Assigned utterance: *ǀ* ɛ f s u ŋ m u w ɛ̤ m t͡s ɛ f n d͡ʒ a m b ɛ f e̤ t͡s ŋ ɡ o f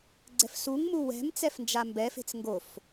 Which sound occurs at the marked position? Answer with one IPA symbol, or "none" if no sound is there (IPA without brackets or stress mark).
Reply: ɡ͡ǀ